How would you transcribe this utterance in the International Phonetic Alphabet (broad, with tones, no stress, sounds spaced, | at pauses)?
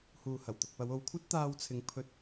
h uː˨ h ɐ˨˩ w t̪ ʊ˨ k̚ p ɐ˨˧ w o˨˧ w kʷʰ ɐ˥ t̚ t̪ aː˧ w t͡sʰ ɪ˨˧ ŋ pʰ ɵ˧ t̚